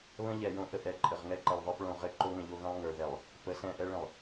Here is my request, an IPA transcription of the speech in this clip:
β ə̃˦ ʎ ɛ˨ j õ˦ ʔ ə˨ ʔ ɛ˨ ǃʼ ə˨ ʁ ŋ ɛ˦ ǃ ɛ˨ lˠ ðˤ ə˞˦ p ɭ õ˦˨ ʁ ɘ˦ ǃ o˦ ŋ ə̃˨ ʎ o˦ ɣ ə̃˦ lˠ ŋ ə˞˨ ð ɛ˨ lˠ | p ə˨ s ɛ̃˦˨ ʔ ɛ˦ ɭ ə̃˨ lˠ

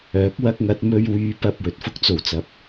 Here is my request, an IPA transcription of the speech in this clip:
œː˨˥ k̚ w ɐ˥ k̚ ŋ ɐ˨˥ t̚ m ɵ˧ ɥ w yː˨˧ p ɐ˨ p̚ w ɵ˨ t̚ f ʊ˥ k̚ t͡s o˨˩ w t͡s ɐ˨ p̚

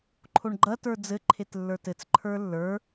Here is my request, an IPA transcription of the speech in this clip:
ǃʰ o ɳ ɡ͡ǃ ɐ t ə˞ d͡z ɘ ǃʰ e t lː ə˞ t ɘ t͡s ǃʰ ə˞ lː ə˞

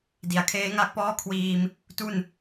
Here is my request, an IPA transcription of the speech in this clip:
d i˩˦ a̯ kʰ eː˦˥ ŋ a˥˩ k̚ p ɔː˥˩ kʰ w iː˧ m | t u˥˩ n

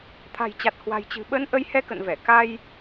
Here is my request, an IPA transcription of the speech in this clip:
t̪ʰ a̤˨˩ j t͡ɕ a˨˩ t̚ h w a̤˨˩ j t͡ɕ ɨ̤˨˩ ɓ ə˨˦ n ʔ ə˨˦ j h ɛ˧ k ə̰˧˨ n v ɛ˧˩ k a˧ j

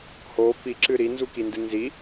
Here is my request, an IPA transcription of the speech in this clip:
h o f i ǁ ɨ ɾ i n z u k i n d ɨ n z i

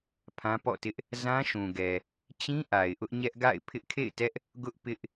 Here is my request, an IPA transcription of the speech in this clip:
pʰ ã˦ p ɔ̰˦˨ t ɪ˦ ʔ | z ã˦ ʃ ũ˨ ɡ ɛ˨ | t͡ɕ ĩ˦ ʔ a˨ ɪ̯ ʔ ʊ˦ ʔ ɲ ɛ˦ ʔ ɡ a̰˦˨ ɪ̯ pʰ ɪ˦ ʔ kʰ ḛ˦˨ ɪ̯ t ɛ˦ ʔ | ɡ ʊ˦ ʔ p ɪ˦ ʔ

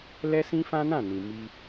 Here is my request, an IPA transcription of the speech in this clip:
l ɛ˦ s ĩ˦ f ã˦ n ã˦˨ n ĩ˨ m i˧

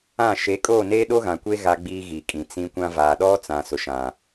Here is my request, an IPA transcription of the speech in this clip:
ã˦˨ ʃ e˨˦ kʼ oː˦˨ n eː˦ ɗ o˦ ɣ ã˨ kʷ e˦ ɣ a˦ ɡ͡b iː˦ ɣ i˨ kʼ ĩ˨ t͡s ĩ˦ kʷ ã˦ v aː˨ ɗ ɔ˦ t͡s ã˨ s ʊ˨ ʃ ã˨

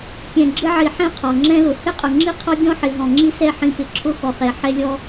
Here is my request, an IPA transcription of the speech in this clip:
kʲ ɛ̃˨ ɡ͡ǁ ɪ˧ ʕ i˨ ħ ɛ̃˧ qʰ ɔ˨ ŋ͡ǁ ɛ̃˦ l ʊ˨ h ɪ˦ qʼ ʊ˨ ŋ͡ǁ i˦ qʰ ɔ˦ ɡʲ ɔ̃˦ ħ ɪ˨ ɦ ɔ̃˨ ŋ͡ǁ i˦ s ɛ˦˨ ħ ĩ˧ p ɪ˧ ǁʰ ʊ˦ x ɔ˨ χ ɛ˨ ħ ɛ˦ lʲ ɔ˦

